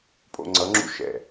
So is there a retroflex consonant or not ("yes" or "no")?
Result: no